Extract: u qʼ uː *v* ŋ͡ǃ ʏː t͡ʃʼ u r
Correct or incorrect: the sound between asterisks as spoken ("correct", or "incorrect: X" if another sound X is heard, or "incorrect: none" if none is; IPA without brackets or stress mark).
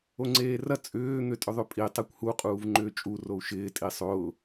correct